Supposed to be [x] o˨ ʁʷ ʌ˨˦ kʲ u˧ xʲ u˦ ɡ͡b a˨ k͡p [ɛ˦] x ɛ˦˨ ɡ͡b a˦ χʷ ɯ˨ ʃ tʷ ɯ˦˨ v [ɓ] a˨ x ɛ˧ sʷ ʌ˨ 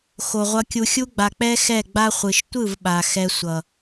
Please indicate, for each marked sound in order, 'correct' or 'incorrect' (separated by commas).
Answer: correct, correct, correct